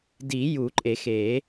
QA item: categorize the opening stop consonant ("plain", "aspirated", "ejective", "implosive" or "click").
plain